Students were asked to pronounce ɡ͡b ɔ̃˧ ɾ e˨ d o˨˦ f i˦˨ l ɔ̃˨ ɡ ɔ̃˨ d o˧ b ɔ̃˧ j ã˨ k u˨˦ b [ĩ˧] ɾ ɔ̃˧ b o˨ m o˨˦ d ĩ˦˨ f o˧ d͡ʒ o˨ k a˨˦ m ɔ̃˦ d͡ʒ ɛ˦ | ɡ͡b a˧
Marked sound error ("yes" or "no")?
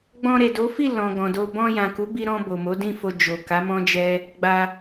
yes